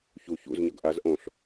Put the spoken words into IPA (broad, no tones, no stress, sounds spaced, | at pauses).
ç u ç ṵ z ɲ ʌ ɡ ʔ a z ʔ õ ɬ